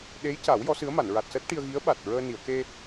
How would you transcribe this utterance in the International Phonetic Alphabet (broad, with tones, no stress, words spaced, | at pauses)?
ɗe˧˥jca˨˩˦w jɔ˧˥sɨ˧˥ə̯ma˨˩˨n ɹa˨˩t̚səː˦˥t̚ ʈi˧ə̯ɣi˧˥ə̯ ɓa˨˩t̚ɹəː˧ni˨˩˨ə̯ ke˧